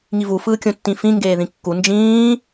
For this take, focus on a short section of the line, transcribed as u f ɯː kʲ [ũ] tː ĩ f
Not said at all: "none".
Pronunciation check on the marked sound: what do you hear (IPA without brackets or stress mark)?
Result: õ